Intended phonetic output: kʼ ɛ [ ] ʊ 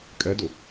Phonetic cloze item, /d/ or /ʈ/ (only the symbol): d